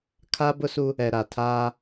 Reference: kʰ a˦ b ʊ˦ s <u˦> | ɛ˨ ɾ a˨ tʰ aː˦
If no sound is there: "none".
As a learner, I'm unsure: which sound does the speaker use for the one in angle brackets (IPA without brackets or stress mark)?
u˦